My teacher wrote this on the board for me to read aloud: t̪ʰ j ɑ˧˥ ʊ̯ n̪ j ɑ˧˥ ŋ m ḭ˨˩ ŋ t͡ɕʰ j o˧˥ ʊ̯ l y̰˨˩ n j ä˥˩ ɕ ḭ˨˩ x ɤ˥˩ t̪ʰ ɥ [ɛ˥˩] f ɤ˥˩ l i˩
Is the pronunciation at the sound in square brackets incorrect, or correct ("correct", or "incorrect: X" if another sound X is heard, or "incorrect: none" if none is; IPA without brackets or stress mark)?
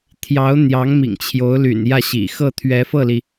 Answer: incorrect: ɛ˧˥